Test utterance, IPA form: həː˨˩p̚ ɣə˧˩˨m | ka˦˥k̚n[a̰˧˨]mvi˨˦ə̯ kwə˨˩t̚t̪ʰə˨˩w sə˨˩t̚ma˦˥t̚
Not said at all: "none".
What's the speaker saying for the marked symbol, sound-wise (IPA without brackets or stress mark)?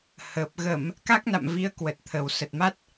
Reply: a̰˧˨